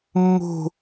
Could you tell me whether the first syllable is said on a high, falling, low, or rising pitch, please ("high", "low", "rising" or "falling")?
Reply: high